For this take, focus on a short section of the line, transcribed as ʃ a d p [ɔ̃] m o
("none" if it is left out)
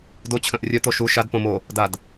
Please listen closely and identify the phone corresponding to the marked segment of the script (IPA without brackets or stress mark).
õ